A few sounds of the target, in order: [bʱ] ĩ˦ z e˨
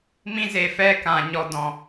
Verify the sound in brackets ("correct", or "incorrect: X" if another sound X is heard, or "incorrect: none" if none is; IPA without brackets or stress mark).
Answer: incorrect: m